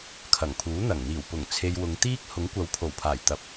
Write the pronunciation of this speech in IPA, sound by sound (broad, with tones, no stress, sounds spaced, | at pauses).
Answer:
kʰ ɐ˨˩ ŋ pʰ uː˨˥ n̪ ɐ˨˩ ŋ n̪ iː˨˩ w p ʊ˨˩ ŋ t͡sʰ e˨ j w ʊ˨˧ ŋ t̪ iː˥ k̚ h ʊ˨˥ ŋ kʷ ɐ˨˧ w pʰ o˨˩ w pʰ aː˨˩ j t̪ ɐ˧ p̚